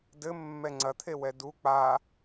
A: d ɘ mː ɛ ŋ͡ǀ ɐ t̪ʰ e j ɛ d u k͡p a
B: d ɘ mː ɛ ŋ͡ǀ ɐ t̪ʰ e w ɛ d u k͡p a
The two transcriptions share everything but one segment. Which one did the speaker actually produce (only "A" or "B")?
B